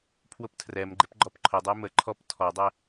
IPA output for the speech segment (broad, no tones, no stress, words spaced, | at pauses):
pʰwʊptʰrɛmɡ͡ǃɪp ɡ͡ǃɔpǃʰʊdˤəj mə ǃʰɔp tʰɔdˤə